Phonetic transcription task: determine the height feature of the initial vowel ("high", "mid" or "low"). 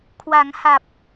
low